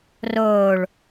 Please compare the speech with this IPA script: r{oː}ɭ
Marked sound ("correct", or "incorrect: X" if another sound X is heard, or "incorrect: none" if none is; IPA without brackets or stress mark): correct